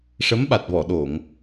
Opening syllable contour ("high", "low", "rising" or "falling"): rising